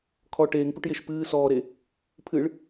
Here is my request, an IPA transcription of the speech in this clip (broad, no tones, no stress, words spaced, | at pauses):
kʰɔ ʈeːŋpuʈjeʃ pɨː sɔːɾe | pʰɨɭ